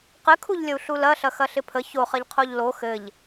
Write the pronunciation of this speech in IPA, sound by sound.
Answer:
qɘkʰuʎlʲəu̯ ɬulɐɬɐ xɐɬɪpʰə çoχɐʎqʰoʎ lo xɘʎ

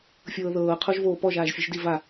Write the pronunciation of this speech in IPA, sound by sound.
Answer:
fʲɤːðɤː qʰoʒvoːpɔ ʒaːʒfʲɯʒdi va

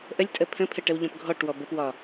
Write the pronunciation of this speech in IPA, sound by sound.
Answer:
ʔəlʲtʼə pʰə̃pʰəʈəwʎɔ̃p ɡʱɔʈwɔ bəpwɒ

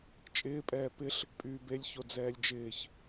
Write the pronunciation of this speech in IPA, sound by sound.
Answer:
t͡ʃʼɪːpʼɛː pɪɬ | pʼyːbelʲçod͡zɛːlʲ d͡ʒɪːç

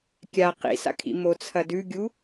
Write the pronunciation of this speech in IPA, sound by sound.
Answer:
kʲa qḭsa̰kʰḭ mot͡sʰɐdʉɡʲu

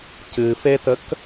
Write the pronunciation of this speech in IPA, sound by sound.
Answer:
cɨfetək

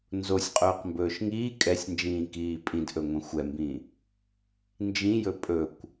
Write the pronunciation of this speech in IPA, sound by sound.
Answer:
nzosʲqʼɵːqmbɵːʃ ŋiː kʼɛsʲnd͡ʒĩːkiː pʼĩdʔɵŋʷɛ̃ xʷɛmbĩ | nd͡ʒĩjɵ pʼɵkʷ

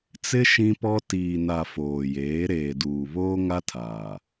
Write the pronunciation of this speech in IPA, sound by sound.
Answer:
t͡sɪ˦ ʃĩ˦pɔ˦ tiː˨na˨ foː˨jeː˨˦ ɾeː˨duː˨ βoː˦ŋa˦tʰaː˨

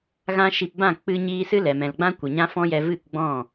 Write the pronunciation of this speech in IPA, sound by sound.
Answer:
ɣã˧ʃi˨pbã˦˨ k͡pɨ˧ɲiː˧ sɨ˦lɛ˨mɛ̃˨lɡ͡bã˦ kʷə˨ɲã˦fɔ̃˦jɛ˧ vɨ˦˨kɡ͡bɔ̃˦˨

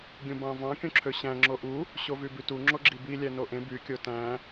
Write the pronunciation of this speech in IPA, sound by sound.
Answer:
ɡʲũbɑ̃vɑ̃ kʲõǁʰøɕæ̃ ŋ͡ǁoʔu | ɕovybytu ŋ͡ǁoɡ͡ǁibi lʲænoʔẽ by kʲotæ̃

